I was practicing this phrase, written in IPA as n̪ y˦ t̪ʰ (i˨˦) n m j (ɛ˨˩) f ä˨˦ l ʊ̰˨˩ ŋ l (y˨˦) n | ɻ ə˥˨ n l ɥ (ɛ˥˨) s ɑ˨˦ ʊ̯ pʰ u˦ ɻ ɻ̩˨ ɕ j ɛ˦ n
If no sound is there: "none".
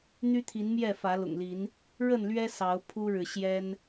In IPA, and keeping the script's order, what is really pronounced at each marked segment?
i˨˦, ɛ˥˨, i˨˦, ɛ˦

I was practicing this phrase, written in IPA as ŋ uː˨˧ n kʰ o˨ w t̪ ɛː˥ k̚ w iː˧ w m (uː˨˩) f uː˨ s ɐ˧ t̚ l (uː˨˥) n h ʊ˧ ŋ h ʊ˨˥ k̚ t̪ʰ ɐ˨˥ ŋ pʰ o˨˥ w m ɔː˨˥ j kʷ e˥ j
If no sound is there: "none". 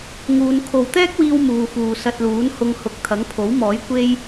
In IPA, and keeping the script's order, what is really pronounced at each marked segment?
uː˨, uː˨˥

